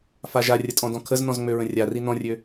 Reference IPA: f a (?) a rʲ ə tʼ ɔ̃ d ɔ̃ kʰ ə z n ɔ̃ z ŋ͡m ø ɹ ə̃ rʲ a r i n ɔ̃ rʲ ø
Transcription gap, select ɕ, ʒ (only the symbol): ʒ